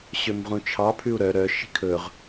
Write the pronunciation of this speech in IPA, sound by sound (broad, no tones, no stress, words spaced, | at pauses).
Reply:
ɕømʁũt͡ʃʰɑ pʰʉu̯ɾœ ɾœ ʃi̤kʰɵʁ